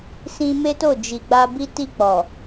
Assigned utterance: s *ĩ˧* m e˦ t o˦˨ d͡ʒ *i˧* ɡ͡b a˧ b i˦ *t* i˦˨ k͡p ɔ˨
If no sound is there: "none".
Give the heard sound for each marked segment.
ĩ˧, i˨, t

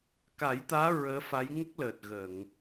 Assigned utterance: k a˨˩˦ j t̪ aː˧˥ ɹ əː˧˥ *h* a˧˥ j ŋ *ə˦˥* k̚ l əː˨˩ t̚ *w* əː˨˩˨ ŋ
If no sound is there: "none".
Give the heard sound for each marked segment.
f, ə˦˥, ɣ

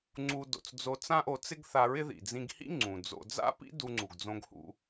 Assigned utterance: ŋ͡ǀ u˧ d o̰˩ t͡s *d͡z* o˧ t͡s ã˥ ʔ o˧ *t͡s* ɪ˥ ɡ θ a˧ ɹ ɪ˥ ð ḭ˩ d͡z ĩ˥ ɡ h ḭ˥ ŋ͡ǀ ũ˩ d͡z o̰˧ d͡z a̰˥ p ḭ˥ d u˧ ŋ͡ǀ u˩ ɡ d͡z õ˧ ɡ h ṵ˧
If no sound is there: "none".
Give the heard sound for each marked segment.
d͡z, t͡s

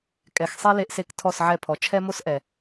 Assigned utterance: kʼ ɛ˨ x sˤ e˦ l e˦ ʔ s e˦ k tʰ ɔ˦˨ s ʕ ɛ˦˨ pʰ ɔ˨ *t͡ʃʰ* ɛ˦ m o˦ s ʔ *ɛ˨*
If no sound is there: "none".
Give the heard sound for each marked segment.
t͡ʃʰ, ɛ˨

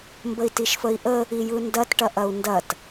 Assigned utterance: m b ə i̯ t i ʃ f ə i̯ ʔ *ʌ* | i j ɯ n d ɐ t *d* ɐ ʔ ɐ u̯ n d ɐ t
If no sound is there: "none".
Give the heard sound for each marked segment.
ə, ʈ

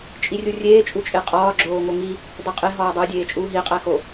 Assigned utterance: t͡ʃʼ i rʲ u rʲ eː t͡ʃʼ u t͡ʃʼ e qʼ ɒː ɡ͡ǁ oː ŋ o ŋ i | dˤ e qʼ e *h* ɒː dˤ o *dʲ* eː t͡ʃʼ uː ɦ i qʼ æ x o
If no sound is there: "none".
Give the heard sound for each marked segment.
ɦ, dʲ

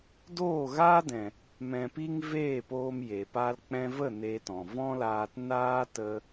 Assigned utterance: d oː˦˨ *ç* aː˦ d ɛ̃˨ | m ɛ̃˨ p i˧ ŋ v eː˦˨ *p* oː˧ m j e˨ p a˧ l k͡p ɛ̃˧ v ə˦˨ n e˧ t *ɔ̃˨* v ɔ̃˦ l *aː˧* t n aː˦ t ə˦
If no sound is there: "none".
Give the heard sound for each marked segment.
ɣ, p, ɔ̃˨, aː˧

